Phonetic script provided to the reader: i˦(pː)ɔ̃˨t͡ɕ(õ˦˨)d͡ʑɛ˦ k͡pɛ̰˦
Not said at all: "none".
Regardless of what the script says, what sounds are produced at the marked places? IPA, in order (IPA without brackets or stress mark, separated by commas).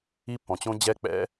pː, õ˦